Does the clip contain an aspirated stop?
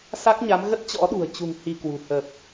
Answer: no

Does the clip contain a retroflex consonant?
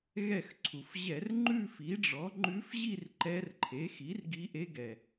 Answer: yes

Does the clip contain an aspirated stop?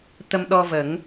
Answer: no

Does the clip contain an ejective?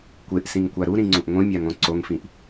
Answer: no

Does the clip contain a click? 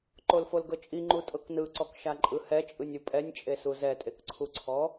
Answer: yes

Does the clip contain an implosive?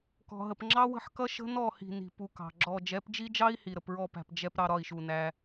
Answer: no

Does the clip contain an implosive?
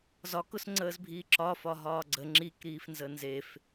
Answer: no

